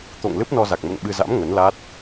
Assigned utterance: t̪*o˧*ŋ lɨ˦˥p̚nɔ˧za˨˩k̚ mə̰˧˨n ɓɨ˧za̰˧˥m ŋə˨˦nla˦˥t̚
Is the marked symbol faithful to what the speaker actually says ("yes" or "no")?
no